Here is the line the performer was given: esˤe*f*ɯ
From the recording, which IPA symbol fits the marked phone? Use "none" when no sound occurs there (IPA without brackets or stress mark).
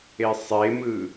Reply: m